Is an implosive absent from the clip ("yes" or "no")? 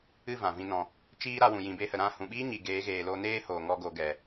no